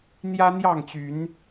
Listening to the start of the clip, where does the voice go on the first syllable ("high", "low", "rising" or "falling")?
high